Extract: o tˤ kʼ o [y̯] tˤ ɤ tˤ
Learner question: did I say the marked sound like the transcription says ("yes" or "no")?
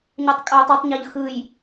yes